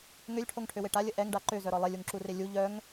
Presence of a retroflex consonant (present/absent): present